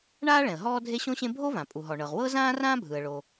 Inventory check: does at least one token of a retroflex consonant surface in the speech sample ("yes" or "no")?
yes